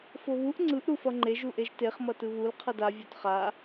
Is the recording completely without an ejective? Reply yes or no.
yes